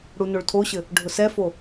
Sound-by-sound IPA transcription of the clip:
ɽ u n o ɭ tʰ o ɕ ɘ | ɖʱ ʊ s ɛ f o

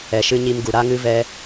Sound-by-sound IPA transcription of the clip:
ɛ˨ ʃ ɨ˧ ɲ i˧ m ɡ u˨ ɾ a˧ ŋ ɨ˧ v ɛ˧

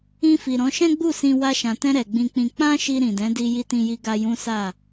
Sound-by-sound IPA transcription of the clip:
ĩ˧ f i˨ ɾ ɔ̃˨˦ ʃ ɛ̃˦ ɡ͡b u˦˨ s ĩ˧ w a˧ ʃ ã˨ t ɛ̃˧ ɾ ɛ˨ ɡ͡b ĩ˧ k͡p ĩ˧ k͡p ã˦ ʃ i˧ ɾ ĩ˨ d ɛ̃˨˦ d i˦ j i˧ t ĩ˧ j i˧ ɡ a˧ j ũ˦ s a˦˨

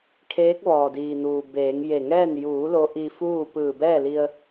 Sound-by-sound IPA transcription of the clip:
kʰ eː˧˥ k̚ ʋ ɔː˩ d iː˩ n uː˩ b eː˩˧ ŋ j e˧˩ ŋ ɛː˥˨ n j uː˩˧ l o˧˥ ʔ i˧ f uː˥˨ p ɯː˧˩ b ɛː˥˨ l i˧ ə̯

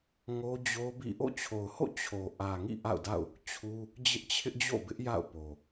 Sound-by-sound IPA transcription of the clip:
ŋ o˦ d͡ʑ o˦ b ḭ˦˨ ʔ o̰˦˨ t͡ɕʰ o˨ ʊ̯ h o̰˦˨ t͡ɕʰ o˨ ʔ ä˨ ŋ ḭ˦˨ ʔ a̰˦˨ ʊ̯ d a̰˦˨ ʊ̯ | t͡ɕʰ u˦ | d͡ʑ ɪ˦ ʔ t͡ɕʰ ɪ˦ ʔ d͡ʑ o̰˦˨ b ɪ˦ ʔ j a̰˦˨ ʊ̯ p o˨

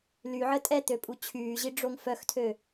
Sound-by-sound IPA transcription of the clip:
l y ʕ ə tʼ ɛ t̪ ø pʼ u t͡ɕʰ yː ʑ i ɖ͡ʐ o ŋ f œ x tʰ ø

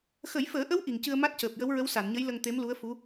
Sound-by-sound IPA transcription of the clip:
x ə˨˩˦ j f əː˨˩˦ ʔ ə˧˥ w ʔ i˨˩ ŋ c ɨ˧ ə̯ m a˦˥ t̚ c əː˨˩ p̚ j ə˧˥ w ɹ ə˧˥ w s a˨˩˨ n ɲ ə˧˥ j l ə˧ ŋ t̪ e˧˥ m l u˧˥ ə̯ f u˧˥

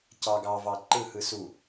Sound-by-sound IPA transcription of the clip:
c ɑ ɡ ɑ v ɑ ǃ ɯ h ɯ s u

